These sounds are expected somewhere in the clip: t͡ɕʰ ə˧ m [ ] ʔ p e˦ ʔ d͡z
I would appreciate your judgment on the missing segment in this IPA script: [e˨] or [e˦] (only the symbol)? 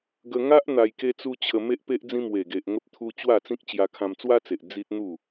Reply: e˦